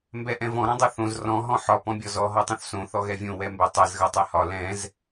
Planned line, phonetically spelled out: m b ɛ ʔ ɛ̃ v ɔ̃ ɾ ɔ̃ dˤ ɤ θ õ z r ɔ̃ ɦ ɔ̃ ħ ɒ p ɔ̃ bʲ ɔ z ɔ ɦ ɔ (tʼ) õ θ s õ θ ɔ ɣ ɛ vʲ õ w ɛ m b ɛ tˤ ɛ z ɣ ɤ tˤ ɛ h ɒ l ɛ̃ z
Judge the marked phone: incorrect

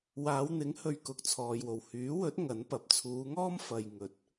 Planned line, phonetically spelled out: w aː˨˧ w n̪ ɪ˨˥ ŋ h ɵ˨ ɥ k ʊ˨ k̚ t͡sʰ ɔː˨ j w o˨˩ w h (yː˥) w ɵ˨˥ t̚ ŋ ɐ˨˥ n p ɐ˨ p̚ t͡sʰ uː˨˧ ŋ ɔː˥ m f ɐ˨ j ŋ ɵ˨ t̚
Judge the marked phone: incorrect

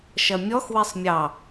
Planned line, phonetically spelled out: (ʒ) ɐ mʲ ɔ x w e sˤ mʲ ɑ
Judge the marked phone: incorrect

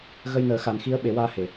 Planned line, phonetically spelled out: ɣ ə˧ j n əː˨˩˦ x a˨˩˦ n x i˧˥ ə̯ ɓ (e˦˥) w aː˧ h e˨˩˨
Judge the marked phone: incorrect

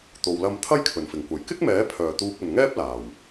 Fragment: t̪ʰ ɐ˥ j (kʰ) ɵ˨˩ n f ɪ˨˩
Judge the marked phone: correct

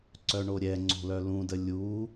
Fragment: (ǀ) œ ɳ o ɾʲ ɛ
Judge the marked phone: correct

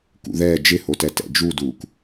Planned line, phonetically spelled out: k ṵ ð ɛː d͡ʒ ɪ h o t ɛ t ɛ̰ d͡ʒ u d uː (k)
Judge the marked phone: correct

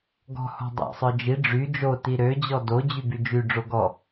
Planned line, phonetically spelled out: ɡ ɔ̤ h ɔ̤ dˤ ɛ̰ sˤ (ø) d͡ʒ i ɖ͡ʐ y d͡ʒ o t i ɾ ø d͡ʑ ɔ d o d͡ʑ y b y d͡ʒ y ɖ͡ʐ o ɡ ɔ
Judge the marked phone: incorrect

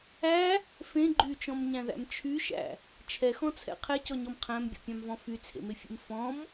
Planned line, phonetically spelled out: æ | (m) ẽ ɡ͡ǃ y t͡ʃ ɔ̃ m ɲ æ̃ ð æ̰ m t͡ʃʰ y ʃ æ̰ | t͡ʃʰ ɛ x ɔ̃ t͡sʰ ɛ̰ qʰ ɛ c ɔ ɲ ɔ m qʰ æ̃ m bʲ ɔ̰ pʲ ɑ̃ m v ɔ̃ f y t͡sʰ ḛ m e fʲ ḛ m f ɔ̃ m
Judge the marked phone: incorrect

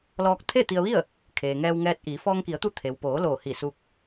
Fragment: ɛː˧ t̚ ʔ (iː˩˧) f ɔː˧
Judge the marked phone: correct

